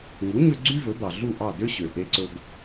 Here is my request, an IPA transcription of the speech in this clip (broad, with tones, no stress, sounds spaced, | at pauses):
ŋ u˩˥ ɲ ø˧ ɡ͡ǀ y˥ v ɵ˩˥ d̪ ɑ˩ ɮ u˥˩ ʔ ɑ˥˩ d ø˥ ɕ ø˩ ʔ e˧ ǀ ɵ˧ ɡ